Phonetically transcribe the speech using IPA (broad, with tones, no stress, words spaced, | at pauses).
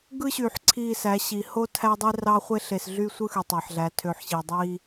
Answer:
ɡɯ˦ɕy˨ħ ǀʰi˦˨sæ˨˦ɕi˨ ho˦ tʰæ˦dˤe˦rɑ˦ χʷe˦ɬe˨sɮy˦sʷɯ˦ xy˨tˤæ˨ħɮæ˨˦ tʰø˨ħɕi˨ dˤi˦